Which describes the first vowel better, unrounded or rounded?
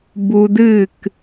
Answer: rounded